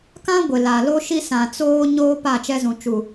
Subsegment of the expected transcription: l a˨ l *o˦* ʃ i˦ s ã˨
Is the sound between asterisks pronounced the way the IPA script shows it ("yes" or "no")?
yes